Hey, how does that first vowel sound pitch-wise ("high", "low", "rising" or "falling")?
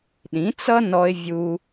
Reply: rising